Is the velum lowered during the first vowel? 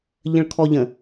yes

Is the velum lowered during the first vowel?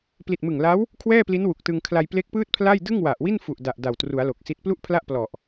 no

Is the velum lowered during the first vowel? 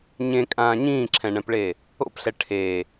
yes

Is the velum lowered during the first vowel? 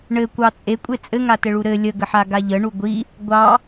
no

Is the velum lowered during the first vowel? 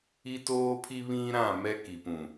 no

